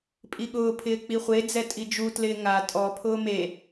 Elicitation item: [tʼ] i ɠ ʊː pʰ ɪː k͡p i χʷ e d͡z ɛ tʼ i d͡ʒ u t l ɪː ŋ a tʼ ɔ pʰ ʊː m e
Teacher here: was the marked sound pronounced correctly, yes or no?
no